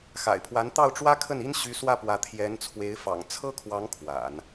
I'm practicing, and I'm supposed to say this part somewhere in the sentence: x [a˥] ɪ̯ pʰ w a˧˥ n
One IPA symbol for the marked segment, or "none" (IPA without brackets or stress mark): a̰˨˩